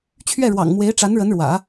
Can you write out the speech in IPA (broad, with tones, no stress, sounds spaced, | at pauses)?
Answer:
t͡ɕʰ ɥ ɛ˥˩ ɻ w ɑ̰˨˩ ŋ m w e˧˥ ɪ̯ ʈ͡ʂ a˧˥ n ɻ ə˧˥ n ɻ w ä̰˨˩˦